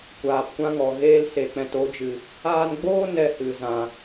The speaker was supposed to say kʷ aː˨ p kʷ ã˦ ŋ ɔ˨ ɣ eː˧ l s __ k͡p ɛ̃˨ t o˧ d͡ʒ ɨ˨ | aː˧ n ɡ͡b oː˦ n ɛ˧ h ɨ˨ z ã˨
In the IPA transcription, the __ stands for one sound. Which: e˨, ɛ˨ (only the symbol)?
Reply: e˨